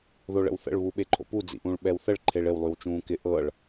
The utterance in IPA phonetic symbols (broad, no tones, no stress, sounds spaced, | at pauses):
ð o ɭ ə̰ w θ ə̰ ɭ β u ɓ e ǃʰ o̰ p u d͡z ḭ ʔ ũː ɭ ɓ ɛ w θ ə ɭ ǃʰ e ɭ ɪ w lˠ y w t͡ʃ ũː k ɪ ʔ ɤ ɭ